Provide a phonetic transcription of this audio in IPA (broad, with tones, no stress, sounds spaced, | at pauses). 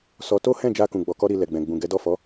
s ɔ˧ t o˦ h ɛ̃˦˨ d͡ʒ a˧ k ũ˨ ɡ͡b ɔ˨ k ɔ˧ ɾ i˧ l ɛ˨ ɡ͡b ɛ̃˨ ɡ͡b ũ˨ ɡ ɛ˨˦ d ɔ˦˨ f ɔ˨˦